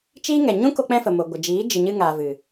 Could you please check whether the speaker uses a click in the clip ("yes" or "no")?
no